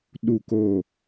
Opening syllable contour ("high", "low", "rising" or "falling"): falling